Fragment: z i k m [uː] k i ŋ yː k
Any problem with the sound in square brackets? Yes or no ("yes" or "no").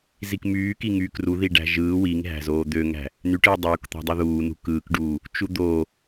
yes